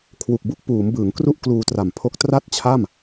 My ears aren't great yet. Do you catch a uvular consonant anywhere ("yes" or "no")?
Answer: no